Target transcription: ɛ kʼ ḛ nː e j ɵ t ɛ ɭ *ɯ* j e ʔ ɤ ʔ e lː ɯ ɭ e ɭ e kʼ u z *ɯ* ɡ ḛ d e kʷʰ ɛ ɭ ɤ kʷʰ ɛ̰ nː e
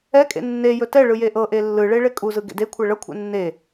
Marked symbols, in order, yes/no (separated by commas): yes, yes